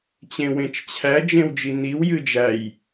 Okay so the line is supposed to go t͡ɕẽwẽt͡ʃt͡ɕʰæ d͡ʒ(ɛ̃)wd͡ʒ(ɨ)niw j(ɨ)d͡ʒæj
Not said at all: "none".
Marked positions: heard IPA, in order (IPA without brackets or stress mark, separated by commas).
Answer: ẽ, i, ɨ